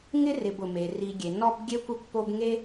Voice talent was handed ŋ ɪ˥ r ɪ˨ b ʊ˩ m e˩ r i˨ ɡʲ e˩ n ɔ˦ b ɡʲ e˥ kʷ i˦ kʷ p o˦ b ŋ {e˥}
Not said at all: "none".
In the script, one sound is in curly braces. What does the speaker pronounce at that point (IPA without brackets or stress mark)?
e˥